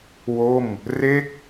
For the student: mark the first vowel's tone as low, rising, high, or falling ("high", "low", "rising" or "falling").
falling